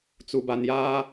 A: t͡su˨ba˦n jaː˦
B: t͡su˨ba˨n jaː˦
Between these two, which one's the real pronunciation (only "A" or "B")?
B